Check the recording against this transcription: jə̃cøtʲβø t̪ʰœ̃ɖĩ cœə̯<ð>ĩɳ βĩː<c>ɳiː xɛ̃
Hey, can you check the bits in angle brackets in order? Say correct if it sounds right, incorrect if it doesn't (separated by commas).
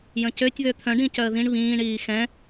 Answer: correct, incorrect